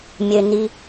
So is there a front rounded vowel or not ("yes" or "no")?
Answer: yes